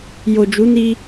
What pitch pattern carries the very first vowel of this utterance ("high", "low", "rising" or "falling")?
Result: low